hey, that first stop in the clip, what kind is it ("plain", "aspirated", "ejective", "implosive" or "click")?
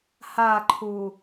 click